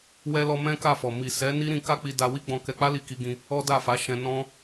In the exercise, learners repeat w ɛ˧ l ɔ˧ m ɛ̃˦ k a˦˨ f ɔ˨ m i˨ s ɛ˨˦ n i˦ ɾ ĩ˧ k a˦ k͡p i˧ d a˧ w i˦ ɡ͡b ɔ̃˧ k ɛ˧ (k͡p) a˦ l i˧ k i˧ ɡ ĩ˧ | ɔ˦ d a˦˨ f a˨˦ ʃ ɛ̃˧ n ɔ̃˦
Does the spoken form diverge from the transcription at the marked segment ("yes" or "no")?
no